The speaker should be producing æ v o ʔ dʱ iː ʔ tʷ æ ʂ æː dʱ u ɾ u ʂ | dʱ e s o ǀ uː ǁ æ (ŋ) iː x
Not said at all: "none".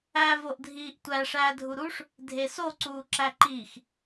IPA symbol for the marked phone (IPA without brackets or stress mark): ǃ